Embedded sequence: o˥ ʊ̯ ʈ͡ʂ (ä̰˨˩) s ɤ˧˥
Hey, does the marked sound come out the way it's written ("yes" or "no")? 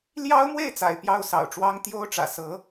yes